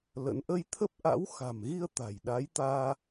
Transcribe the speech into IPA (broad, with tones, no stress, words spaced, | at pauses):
lə̰˧˥n ʔə˧jt̪ʰə˦˥p̚ʔa̰˧˥w xa̤˨˩mɣi˧ə̯ t̪a̤˨˩jɗa˨˦jt̪aː˧